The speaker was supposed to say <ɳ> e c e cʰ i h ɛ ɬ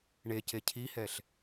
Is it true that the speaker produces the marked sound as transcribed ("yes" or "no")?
yes